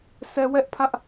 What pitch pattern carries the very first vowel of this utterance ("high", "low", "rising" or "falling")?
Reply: high